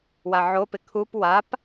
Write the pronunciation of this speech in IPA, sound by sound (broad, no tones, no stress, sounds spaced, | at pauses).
w a ʕ o p ɪ kʰ u p w a p